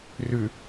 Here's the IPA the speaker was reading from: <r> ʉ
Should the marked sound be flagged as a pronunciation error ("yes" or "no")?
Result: no